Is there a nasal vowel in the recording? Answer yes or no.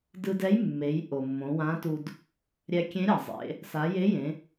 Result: yes